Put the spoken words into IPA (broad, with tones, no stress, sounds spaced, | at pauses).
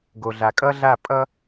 ɡ o˨ ɮ a˨ kʼ ʌ˦ ɮ a˦˨ pʼ ʌ˦